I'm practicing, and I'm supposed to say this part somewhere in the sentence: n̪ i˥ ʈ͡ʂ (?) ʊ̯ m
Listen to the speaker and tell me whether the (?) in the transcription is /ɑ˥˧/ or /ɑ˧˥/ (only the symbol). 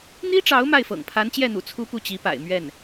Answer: ɑ˧˥